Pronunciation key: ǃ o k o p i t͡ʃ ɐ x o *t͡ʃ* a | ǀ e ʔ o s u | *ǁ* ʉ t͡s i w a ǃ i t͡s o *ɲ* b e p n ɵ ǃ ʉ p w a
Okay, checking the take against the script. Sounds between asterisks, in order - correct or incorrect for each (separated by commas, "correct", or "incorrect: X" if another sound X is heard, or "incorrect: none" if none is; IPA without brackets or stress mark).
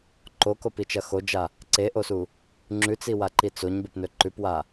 incorrect: d͡ʒ, incorrect: ŋ͡ǁ, correct